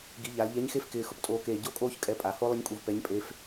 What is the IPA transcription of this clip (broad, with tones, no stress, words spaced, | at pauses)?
ɡi˩˧ʎa˩˧lʎɛ˧˥ɲxe˥f kɪː˧xʊ˥ptʼoː˧˥keː˧ ɟo˥kʼoː˥ç kʼɛ˧ pʼa˩˧ho˥ lˠɪ˥ɲkʼu˧vpɛ˧˥ɲpʼe˧˥f